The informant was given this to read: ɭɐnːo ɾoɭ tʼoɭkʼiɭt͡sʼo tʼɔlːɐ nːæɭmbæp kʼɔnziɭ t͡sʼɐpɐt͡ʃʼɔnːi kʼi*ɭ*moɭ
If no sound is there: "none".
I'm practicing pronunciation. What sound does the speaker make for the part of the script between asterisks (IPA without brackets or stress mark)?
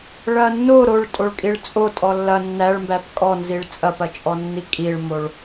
ɭ